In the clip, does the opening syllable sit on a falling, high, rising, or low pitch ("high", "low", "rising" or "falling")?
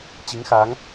rising